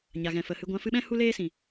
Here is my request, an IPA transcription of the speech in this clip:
ɲa˨ɣɛ̃˨fə˨hɨ˧ ɡʷã˨˦fɨ˧ɓɛ̃˦ hu˦leː˦sĩ˨

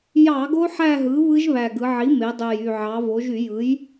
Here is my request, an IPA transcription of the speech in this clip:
jɑ˧˩˧ɡo˦˥ ħæ˥˧ɦɯ˩˥βɯ˦˥ʒ βæ˨˩ɡɯ˩˧ ʕi˩˥me˩˧dˤø˨˩jy˨˩ ʕɑ˩˧vo˩˧ʒy˧˩˧jɯ˩˥j

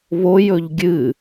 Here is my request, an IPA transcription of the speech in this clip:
βojɵʎ ɡʲɨ

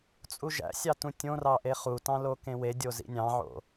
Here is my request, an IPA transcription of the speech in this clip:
t͡sʼuʒæ̰sʲɑtũ tʲõrɑʔe χutɑ̃lo kẽwedʲozḭ nʲɑ̃ʕo̰

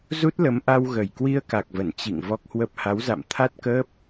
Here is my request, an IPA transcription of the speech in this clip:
zu˦˥t̚lə˨˦mʔa˧w ɣə˨˩jkwi˧ə̯ka˨˩k̚və˧˩n t͡ɕḭ˧˨ŋ vɔ˦˥k̚hwə˦˥p̚ ha˨˦wza̰˧˨m t̪ʰa˦˥t̚kəː˦˥p̚

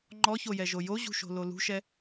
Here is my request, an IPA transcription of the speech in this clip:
ŋ͡ǃɔçojɛʒo joʑṳʃo̤lo lṳʃɛ

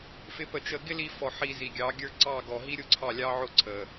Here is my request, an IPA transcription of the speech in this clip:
fɪ˧ pə˨t͡ʃə˨ ɡɪ˦li˧fɔ˨ ħi˨ zi˨ɡʲɑ˨˦ɡʲə˞˦ ǀɑ˦˨ɡɔ˨ɦi˦ ɾʲʊ˦ǀʰɑ˦˨ lʲɑ˦ ʕʊ˦ǀʰə˨

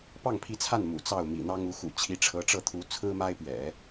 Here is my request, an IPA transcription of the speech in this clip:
pɑ˥˩ŋpʰi˧˥t͡sʰa˥˩n mṵ˨˩t͡sɑ˥˩ʊ̯ mḭ˨˩n̪ɑ˥ŋu˧˥xṵ˨˩ t͡ɕʰi˧˥ʈ͡ʂʰɤ˧˥ʈ͡ʂɤ˥˩t̪ʰu˧˥ t͡sʰɹ̩˥ma˥ɪ̯pɥɛ̰˨˩˦

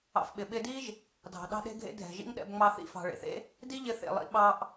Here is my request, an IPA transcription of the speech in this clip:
ɑ̰˧fɓɪ˩ ɓɪ˧di˥ʒ | dʱɑ̤˩ ɗɑ̤˥ɗe̤˥ɡʱḛ˥ dʱɛ̤˩ʒḭ˥ŋɗɛ̰˧bŋ͡mɑ˧ θḭ˧fɑ̤˩ɭḛ˩θḛ˥ | di˥ʎɪ˧θḛ˩lˠḭ˧ ɓɑ˧ʔ

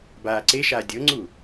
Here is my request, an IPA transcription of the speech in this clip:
baːǀeʃaː dʲɤŋ͡ǀu

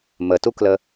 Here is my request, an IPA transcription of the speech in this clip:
mətuklə

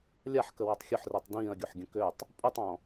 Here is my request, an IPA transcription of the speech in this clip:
lʲaħkəwotˤ xʲʊħritˤ dĩːɐ̯ɡʲoħɡʲə̃ køtˤ | pʼutˤɔ̃

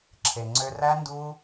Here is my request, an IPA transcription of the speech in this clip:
ǁʰe˨ŋ͡ǀø˧ræ˦ ndu˦

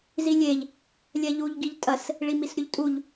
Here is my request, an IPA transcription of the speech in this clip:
zilʲeʎ | lʲɛʎuʎ ɡiʎtʼɐs | ɭimisɾʲuʎtʼuʎ

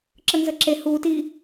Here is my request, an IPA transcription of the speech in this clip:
ǁənzəǁe huːt i

